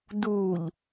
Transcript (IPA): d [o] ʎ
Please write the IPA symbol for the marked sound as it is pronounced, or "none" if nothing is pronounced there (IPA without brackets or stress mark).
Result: u